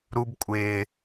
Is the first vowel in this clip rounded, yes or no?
yes